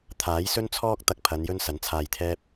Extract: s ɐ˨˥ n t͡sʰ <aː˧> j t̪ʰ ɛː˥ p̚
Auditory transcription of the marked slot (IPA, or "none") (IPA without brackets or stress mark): aː˧